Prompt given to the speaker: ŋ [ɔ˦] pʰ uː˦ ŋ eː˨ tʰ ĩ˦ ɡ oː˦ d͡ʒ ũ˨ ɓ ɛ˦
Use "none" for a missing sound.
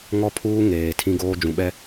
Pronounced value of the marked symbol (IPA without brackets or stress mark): ɔ˦